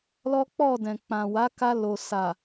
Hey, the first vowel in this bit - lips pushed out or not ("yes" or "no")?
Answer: yes